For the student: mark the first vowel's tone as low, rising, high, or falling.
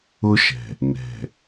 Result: high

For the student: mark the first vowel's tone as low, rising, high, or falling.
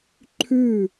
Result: falling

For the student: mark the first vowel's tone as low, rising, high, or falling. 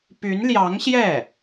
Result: rising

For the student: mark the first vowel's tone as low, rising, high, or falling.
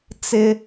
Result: high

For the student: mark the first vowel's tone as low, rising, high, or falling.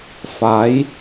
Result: rising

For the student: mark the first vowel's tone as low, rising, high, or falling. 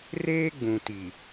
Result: high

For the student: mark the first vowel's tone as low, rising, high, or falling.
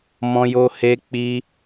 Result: high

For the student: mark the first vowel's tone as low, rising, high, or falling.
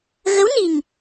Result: rising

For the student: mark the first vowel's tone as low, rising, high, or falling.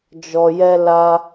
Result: low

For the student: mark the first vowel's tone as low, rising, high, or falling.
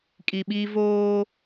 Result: low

